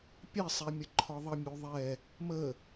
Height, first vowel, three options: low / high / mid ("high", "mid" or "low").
mid